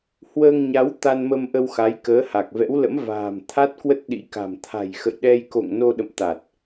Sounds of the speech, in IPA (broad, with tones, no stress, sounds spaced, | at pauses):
h w əː˧ ŋ ɲ a˨˦ w t̪ a˧ n m ə˧ m ʔ ə˧ w x a˨˦ j k əː˨˦ h a˨˩ k̚ v ɛ̰˧˥ w l ə̰˧˥ m v a̤ː˨˩ m t̪ʰ a˦˥ t̚ k w ə˦˥ t̚ ɗ ḭ˧˥ k a̤˨˩ m t̪ʰ a̤˨˩ j x ə̰˧˨ j ɗ ɛ˧ j k o̰˧˨ ŋ n o˧ ɗ ə̰˧˨ m t̪ a˨˩ t̚